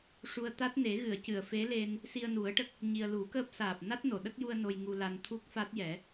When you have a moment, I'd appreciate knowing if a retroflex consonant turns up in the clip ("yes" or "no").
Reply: yes